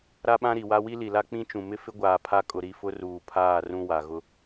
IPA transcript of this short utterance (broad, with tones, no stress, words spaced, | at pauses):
ɾa˦ɓã˦ɾi˨wa˦ wi˦li˨la˦ k͡pĩ˦t͡ʃũ˨ mɪ˦fɪ˦ɡʷaː˨ pʰa˦kʼʊ˨ɾi˦˨ fʊ˦ruː˨pʰaː˦˨ rũ˦wa˨ɣʊ˦